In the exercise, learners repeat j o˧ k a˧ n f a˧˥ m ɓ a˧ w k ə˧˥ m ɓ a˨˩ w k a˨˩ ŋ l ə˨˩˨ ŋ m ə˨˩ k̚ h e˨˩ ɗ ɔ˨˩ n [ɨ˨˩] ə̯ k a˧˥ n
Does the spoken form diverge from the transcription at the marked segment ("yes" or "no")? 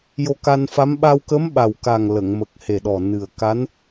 no